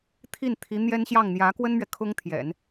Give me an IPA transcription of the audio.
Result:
t̪ʰ i˥˩ n t̪ʰ i˧˥ n̪ j ɛ˥ n ɕ j ɑ˥˩ ŋ n̪ j ä˧˥ k w ə˥ n m ɥ ɛ˨ kʰ ʊ˥ ŋ t̪ʰ j ɛ̰˨˩˦ n

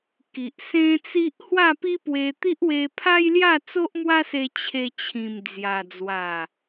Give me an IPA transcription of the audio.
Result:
k i˨ ʔ s ẽ˦ t͡s i˦ ʔ h w a˥˧ p i˦ p w e˧ t̪ i˦ ʔ w e˧ pʰ a˦ j l j a˥˧ t͡s o˦ ʔ m w a˦ s e˧ t͡ɕʰ e˧ t͡ɕʰ ĩ˨˩ m d͡z j a˨˩ d͡z w a˨˩

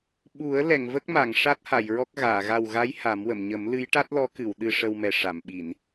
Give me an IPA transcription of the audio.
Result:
ɓ u˨˩˦ ə̯ l ɛ˨˩˨ ŋ v ə˦˥ k̚ m a˨˩˨ ŋ ʂ a˦˥ t̚ h a˨˩˨ j ɹ ɔ˦˥ k̚ ɣ aː˨˩˨ ɣ a˨˩ w ɣ a˧˥ j h a˨˩˦ m w ə˨˩˨ m ɲ ə˨˩˦ m l ɨ˧˥ j ʈ a˦˥ t̚ l ɔ˧˥ k ɨ˨˩˨ w ɗ ɨ˧ ʂ ə˧ w m ɛ˨˩ ʂ a˨˩˨ m ɓ i˨˩˨ n

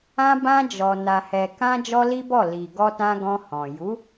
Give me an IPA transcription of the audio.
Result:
ã˧ b ã˧ d͡ʒ ɔ˨ n a˨ h ɛ˨ k ã˧ d͡ʒ ɔ˦ l i˦ b ɔ˦˨ l i˨ ɡ ɔ˧ t ã˧ ɡ ɔ̃˧ h ɔ̃˨ j u˨˦

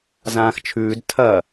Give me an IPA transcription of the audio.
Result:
z ãː x t͡ʃʰ ʉː d tʰ ɐ

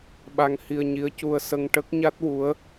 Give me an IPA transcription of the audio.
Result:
ɓ a˧ ŋ h i˧ ə̯ ɲ i˧˥ ə̯ c u˧ ə̯ s ə˧ ŋ ʈ ə˦˥ k̚ ɲ a˦˥ t̚ w u˧˥ ə̯

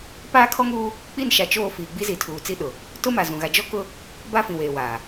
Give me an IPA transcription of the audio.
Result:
p aː˦ kʰ ɔ˦ ŋ uː˦ | k͡p i˦˨ n ʃ a˨ t͡ʃ oː˦˨ f iː˨ ɡ͡b i˦ z i˨˦ tʰ uː˨ t͡s i˦ ɗ ʊ˨ | t ʊ˦ m a˨ z ũ˨ ɣ a˨ d͡ʒ ɔ˦ k ʊ˦ | b a˦ f ĩ˨ w eː˨ w aː˨

